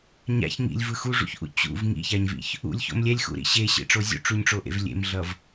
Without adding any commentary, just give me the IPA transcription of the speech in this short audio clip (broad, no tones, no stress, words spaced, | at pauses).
ɲa̰ç ŋḭlʲvɯ xuʐṵçʔṵ t͡ɕṵv ŋḭçaɲvḭç | ṵlʲço̰m lʲɛlʲxṵɾḭ ɕeɕḛʈ͡ʂo zʲṵʈ͡ʂuɲʈ͡ʂoʔḛv lʲḛmɮʌv